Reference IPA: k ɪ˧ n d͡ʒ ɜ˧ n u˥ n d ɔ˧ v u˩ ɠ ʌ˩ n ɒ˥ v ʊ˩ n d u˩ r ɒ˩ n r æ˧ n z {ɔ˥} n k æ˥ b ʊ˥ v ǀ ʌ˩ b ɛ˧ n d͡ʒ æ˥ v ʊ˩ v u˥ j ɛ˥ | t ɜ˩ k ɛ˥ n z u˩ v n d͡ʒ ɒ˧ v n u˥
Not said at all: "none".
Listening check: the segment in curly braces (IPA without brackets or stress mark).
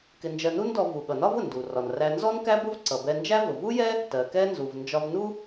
ɔ˥